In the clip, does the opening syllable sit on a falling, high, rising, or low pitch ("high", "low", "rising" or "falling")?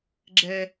low